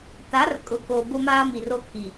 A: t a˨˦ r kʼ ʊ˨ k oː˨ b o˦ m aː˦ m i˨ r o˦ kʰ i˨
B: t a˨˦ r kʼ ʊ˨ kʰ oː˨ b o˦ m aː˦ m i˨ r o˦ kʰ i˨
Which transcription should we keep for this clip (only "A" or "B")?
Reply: A